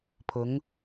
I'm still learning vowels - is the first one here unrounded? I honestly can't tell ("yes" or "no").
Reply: no